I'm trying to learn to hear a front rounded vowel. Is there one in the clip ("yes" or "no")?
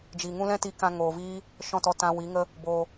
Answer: no